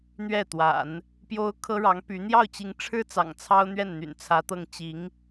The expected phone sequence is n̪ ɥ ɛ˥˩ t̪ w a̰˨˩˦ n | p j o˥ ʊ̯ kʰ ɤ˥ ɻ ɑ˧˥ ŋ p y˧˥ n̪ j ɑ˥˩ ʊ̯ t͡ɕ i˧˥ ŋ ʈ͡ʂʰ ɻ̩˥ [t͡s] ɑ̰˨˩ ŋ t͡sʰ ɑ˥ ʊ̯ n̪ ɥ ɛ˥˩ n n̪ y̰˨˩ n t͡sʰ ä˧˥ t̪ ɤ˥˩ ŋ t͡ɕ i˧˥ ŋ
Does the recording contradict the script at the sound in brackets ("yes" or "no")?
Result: no